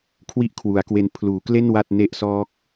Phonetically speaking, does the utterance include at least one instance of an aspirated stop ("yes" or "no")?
yes